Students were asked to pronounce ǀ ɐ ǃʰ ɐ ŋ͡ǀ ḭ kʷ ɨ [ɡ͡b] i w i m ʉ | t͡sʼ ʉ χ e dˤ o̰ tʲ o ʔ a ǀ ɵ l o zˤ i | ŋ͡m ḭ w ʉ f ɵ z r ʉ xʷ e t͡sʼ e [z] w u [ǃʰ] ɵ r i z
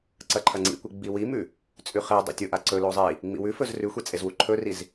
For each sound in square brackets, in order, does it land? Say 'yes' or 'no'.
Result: yes, yes, yes

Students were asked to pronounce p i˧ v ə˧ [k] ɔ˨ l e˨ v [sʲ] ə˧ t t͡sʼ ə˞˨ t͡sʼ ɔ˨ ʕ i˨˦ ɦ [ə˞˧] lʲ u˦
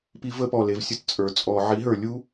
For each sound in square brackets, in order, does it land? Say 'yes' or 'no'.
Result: no, yes, no

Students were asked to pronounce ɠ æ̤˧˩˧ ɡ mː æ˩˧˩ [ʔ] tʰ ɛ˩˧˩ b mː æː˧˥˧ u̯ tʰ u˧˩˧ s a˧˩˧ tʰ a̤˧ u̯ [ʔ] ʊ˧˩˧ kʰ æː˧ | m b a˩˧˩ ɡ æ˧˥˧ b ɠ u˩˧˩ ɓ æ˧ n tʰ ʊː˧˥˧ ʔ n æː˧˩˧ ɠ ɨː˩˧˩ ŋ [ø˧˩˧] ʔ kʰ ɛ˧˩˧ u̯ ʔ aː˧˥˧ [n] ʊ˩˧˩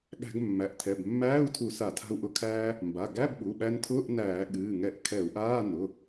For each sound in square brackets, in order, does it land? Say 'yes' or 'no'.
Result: yes, yes, no, yes

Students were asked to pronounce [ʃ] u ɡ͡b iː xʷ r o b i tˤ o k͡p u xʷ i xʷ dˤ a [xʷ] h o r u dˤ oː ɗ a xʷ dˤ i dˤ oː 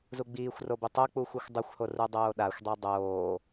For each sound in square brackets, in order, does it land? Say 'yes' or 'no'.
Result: no, yes

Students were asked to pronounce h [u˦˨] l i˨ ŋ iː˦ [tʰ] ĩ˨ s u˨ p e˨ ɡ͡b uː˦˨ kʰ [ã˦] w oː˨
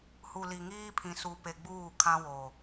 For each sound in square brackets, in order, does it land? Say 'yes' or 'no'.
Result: no, no, yes

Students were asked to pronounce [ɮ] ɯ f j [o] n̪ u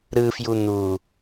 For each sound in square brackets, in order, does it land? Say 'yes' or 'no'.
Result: no, no

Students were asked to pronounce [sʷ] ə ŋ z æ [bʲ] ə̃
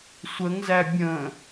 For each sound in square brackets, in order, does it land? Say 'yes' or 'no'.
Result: yes, yes

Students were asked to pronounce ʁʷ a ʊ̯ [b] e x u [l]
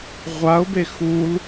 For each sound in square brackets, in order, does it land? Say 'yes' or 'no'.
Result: yes, yes

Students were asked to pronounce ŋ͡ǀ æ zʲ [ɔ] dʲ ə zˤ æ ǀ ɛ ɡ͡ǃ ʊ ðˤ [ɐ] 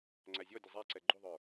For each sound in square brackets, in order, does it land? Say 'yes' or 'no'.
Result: yes, no

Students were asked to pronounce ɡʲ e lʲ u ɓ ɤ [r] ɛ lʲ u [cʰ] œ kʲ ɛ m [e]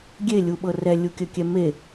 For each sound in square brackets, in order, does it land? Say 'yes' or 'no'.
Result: yes, no, yes

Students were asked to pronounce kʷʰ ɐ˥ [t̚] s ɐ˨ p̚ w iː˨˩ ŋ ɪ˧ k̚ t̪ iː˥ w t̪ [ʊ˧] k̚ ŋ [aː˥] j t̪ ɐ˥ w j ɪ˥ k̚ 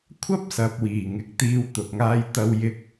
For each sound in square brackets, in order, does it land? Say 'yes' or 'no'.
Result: no, yes, yes

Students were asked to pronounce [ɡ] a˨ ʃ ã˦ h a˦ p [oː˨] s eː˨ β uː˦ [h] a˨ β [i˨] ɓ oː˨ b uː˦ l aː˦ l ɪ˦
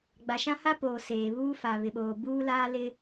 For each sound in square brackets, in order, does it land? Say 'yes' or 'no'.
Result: no, yes, no, no

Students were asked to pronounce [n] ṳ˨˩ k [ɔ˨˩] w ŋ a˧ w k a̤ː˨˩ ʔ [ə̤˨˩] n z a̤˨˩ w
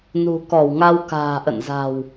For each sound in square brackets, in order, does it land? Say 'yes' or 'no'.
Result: yes, no, no

